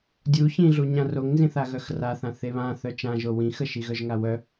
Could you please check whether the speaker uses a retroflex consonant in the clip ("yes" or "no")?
no